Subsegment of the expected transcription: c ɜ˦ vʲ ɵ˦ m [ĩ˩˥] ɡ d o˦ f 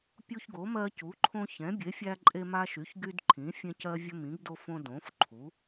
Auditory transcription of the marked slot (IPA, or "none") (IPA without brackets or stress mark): ĩ˩˥